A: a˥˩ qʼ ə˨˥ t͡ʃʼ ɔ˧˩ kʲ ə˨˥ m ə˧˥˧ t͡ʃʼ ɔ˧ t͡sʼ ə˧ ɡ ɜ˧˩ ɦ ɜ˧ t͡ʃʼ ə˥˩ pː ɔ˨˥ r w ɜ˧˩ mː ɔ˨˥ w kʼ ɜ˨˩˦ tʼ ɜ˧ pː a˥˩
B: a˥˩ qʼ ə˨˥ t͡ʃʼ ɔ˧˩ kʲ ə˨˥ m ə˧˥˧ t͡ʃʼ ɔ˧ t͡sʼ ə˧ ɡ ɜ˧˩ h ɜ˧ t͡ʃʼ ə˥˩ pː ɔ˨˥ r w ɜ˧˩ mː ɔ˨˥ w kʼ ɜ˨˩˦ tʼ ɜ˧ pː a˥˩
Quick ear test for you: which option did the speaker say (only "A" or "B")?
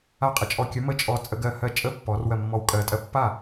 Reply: B